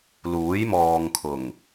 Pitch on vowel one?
rising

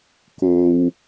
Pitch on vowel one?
low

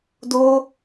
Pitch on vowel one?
high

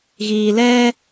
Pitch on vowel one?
low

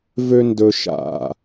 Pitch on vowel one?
low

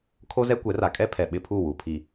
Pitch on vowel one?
high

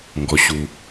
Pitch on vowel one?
low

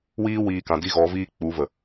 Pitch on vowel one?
high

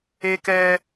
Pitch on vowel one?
high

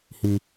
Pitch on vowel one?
low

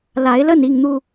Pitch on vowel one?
rising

